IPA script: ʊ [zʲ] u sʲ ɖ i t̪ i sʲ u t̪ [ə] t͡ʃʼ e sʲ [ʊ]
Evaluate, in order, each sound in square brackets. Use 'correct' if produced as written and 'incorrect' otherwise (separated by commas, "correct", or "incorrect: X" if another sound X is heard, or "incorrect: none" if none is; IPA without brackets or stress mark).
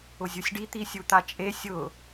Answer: correct, incorrect: a, correct